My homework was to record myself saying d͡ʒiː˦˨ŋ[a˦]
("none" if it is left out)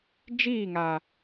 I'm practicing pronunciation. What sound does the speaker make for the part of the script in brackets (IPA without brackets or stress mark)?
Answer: a˨